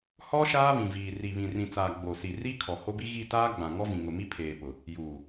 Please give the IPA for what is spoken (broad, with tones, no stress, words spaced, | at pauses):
hɔ˦ ʃaː˦βĩ˨viː˨ ri˨βĩ˨rĩ˨t͡saː˨ ɡ͡bo˨si˨ ri˦ kʰɔ˨ho˦bi˦ ɣi˦˨taː˦ ɡ͡bã˨ ŋɔ˦vĩ˨ŋʊ˨ mi˦pʰeː˨pʊ˨ | juː˨